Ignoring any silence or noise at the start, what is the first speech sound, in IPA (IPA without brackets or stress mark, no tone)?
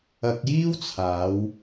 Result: ɐ